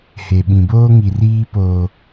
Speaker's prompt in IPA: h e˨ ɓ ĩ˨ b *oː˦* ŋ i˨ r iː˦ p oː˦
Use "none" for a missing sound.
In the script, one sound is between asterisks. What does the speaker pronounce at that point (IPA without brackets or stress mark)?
oː˦